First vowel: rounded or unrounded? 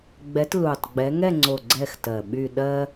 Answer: unrounded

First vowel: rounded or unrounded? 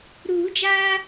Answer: rounded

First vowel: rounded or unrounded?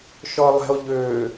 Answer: rounded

